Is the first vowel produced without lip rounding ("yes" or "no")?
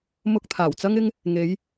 no